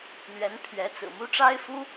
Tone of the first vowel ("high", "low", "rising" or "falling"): rising